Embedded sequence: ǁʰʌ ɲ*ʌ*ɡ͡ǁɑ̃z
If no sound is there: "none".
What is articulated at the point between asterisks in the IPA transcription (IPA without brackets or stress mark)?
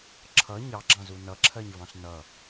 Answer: ɑ